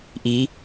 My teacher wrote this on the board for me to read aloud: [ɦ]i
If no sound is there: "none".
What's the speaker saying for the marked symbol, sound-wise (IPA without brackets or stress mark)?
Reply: ʔ